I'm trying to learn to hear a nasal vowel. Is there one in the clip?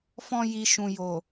yes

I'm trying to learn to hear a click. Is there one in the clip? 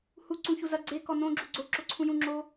yes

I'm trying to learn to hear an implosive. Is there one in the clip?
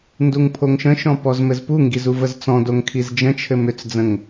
no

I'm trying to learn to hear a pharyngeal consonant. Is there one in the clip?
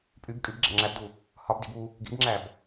no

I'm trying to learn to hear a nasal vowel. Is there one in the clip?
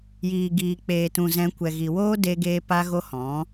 yes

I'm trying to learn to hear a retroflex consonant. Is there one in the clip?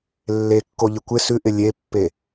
no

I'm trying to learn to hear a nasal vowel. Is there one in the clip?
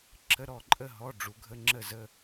no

